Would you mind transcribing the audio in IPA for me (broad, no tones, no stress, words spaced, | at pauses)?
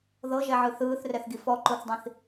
ðɤʒɛʕɯ θɯːθrɛθɡi fɔǃoθdˤĩθ